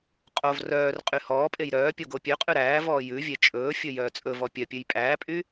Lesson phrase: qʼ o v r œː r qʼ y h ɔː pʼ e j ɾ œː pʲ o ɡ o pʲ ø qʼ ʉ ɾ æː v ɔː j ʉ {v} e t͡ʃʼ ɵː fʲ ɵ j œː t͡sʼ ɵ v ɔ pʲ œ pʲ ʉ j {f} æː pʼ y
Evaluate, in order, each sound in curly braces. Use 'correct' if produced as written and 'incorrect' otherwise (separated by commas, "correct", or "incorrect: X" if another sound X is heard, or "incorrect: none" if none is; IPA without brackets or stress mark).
incorrect: vʲ, incorrect: pʼ